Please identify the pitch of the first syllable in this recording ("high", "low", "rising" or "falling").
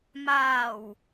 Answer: low